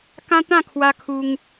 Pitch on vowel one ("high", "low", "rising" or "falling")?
high